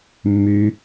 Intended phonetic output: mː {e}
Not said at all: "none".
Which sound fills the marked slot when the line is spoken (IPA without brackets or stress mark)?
y